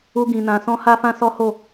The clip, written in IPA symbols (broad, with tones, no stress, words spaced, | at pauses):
u˦ɡĩ˧nã˧ sɔ̃˦ha˦fã˦ sɔ˦ho˦˨